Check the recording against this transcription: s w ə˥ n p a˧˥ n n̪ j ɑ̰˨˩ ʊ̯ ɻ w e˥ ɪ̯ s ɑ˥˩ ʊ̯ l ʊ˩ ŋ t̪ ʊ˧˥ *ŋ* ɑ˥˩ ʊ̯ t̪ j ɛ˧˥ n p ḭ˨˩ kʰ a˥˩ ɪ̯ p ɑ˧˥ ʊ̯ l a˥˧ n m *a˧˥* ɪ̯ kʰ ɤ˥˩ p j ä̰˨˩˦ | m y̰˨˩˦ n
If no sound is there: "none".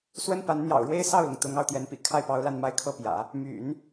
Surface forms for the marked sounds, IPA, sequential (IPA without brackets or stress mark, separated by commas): ŋ, a˥˧